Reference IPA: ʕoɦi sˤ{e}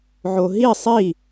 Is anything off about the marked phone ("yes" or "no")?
yes